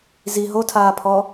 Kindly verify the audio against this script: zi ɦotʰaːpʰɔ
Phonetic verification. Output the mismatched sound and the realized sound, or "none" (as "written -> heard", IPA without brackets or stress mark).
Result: none